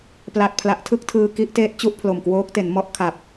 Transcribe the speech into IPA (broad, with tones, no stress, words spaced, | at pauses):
pla˨˩t̚pʰla˨˩ʔtʰɯ˥˩k̚ tʰɯː˧ki˦˥ʔteː˦˥t̚ t͡ɕu˥˩ʔpʰlo˨˩mkwoː˦˥k̚te˩˦n mɔ˥˩ʔ kʰa˨˩p̚